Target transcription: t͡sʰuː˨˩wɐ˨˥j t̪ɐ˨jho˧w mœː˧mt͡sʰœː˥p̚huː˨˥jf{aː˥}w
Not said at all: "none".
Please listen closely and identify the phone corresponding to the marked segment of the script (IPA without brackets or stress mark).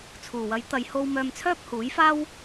aː˥